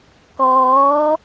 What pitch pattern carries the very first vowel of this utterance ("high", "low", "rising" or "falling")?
rising